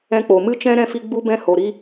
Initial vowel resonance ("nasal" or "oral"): nasal